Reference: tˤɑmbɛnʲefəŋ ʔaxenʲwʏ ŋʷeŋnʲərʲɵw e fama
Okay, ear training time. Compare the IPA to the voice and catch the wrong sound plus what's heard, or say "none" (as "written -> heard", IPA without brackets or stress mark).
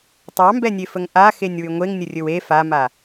none